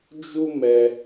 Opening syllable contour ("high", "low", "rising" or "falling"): high